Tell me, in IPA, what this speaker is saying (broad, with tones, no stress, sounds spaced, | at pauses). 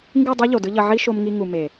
ŋ ɡ ɯ˦˨ dˤ ɛ˦ ʎ o˨ d ɯ˦ ʎ ʌ˧ ʕ i˦ ʃ o˧ m ŋ i˧ ŋ u˨ m e˨